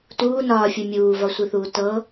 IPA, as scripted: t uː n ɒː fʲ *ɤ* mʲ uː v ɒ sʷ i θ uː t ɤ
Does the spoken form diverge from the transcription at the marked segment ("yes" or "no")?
yes